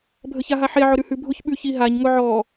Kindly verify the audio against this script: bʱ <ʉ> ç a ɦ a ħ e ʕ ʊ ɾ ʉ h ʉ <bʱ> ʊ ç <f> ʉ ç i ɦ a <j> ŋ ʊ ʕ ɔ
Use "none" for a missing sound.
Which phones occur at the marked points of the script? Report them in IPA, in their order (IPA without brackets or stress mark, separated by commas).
ə, bʱ, ɓ, ɲ